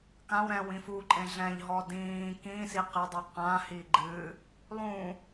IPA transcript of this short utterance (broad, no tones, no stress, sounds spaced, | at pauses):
k ã w ɾ ɛ̃ w ĩ f u ǃʼ ẽ ɮ ɛ̃ ʎ ɦ ɔ d ĩː k ĩ s i q e dˤ ɨ q ã h i ɡ͡ǃ ɨ | lˠ ũ